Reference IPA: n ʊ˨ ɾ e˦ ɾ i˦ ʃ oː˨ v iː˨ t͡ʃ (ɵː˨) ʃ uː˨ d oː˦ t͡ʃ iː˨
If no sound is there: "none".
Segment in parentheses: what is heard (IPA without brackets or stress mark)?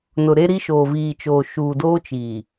oː˨